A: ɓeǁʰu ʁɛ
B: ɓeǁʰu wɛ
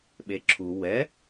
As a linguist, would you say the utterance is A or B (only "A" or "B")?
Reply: B